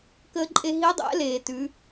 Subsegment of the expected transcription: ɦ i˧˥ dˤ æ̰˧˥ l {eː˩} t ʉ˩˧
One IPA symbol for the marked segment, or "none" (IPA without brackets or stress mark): eː˩